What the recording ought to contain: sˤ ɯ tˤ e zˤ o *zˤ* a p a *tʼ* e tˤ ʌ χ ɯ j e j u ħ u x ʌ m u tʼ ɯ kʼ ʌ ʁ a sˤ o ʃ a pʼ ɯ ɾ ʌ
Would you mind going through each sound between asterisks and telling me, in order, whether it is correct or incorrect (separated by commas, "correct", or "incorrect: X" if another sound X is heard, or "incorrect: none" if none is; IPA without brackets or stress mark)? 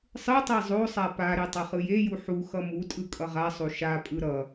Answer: incorrect: sˤ, incorrect: ɾ